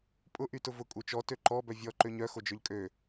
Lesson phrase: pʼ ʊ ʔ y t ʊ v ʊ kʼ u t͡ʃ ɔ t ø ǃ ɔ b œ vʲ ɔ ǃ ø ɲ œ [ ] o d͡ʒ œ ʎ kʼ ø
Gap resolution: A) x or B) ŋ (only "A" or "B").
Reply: A